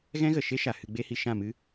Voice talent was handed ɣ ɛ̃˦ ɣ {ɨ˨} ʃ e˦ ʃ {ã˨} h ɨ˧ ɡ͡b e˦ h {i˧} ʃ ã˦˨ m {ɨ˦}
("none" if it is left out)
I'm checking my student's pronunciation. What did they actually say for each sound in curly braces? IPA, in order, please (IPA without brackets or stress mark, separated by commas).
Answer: ə˨, a˨, i˧, ɨ˦